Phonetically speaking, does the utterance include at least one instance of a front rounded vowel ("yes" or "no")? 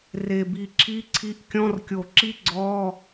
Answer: no